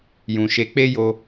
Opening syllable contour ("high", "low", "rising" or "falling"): low